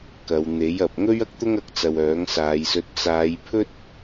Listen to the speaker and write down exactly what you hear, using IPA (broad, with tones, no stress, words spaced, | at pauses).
kɐ˨˧w n̪e˨˥jɐ˨p̚ ŋɵ˥ɥɐ˥k̚ t̪ʊ˥ŋɐ˧k̚t͡sɐ˨w œː˨˥ŋsaː˨˧jsɵ˧t̚ t͡saː˨˧jpʰɵ˥t̚